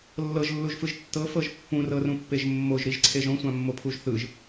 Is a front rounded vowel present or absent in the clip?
absent